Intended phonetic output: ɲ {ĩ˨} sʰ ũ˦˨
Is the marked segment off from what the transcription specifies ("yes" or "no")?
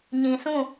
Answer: no